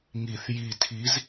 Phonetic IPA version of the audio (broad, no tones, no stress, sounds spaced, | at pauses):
ŋ i θ j i tʰ i z